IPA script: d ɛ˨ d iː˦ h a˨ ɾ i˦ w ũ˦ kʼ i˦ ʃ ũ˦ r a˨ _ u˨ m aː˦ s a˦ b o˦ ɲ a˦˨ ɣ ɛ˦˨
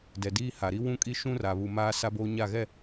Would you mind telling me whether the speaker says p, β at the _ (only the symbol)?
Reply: β